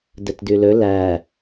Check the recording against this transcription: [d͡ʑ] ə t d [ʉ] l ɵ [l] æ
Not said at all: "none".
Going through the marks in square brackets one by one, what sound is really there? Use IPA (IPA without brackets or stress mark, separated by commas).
d, ʉ, l